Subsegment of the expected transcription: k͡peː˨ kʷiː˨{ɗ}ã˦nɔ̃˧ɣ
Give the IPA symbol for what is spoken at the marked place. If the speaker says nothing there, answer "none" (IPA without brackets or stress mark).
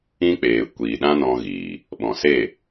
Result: ɗ